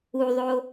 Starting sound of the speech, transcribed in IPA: u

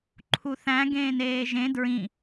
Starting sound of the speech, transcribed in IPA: ǃʰ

